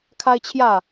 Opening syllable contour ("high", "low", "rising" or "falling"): high